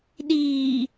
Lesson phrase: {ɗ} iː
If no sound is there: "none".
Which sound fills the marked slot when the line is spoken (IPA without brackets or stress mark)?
ɗ